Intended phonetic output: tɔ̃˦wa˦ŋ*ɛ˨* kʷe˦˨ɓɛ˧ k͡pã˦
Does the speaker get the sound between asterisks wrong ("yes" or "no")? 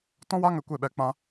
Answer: yes